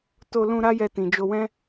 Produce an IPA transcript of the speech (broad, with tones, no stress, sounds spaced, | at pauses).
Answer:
t o˧ l ũ˧ ɾ a˦ j ɛ˧ t ĩ˨ d͡ʒ o˧ w ɛ̃˦